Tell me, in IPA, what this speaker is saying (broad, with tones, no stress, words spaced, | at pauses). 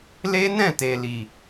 le˦nɛ̃˦˨te˨ li˨